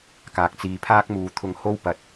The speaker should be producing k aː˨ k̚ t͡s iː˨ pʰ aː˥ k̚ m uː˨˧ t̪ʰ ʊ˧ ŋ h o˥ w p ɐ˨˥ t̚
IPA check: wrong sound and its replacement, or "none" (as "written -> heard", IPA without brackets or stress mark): none